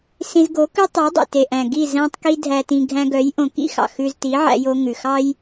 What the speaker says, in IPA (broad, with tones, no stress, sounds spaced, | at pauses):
s ĩ˧ z ɡ o˨˦ k ʉ˦ tˤ æ˨˦ dˤ ḭ˨ t e˨ ʔ æ̃˨ ɡ i˦˨ z æ̃˧ tˤ k i˧ dʱ æ˨ t ĩ˨ ɡʱ æ̃˧ ɡ œ˨˦ j ʔ õ˧ k ḭ˦ x ɑ̰˨ x ʉ˧ z t i˨˦ ʕ æ̰˧ j o˧ ŋ ʉ˨ x ɑ˦ j